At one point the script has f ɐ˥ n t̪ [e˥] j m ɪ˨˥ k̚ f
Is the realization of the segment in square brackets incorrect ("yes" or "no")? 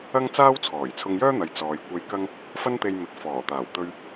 yes